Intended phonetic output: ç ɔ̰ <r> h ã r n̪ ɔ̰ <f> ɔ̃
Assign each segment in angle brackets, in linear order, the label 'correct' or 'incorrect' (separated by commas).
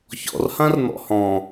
correct, incorrect